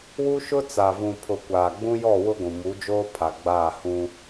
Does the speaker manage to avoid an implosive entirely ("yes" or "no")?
yes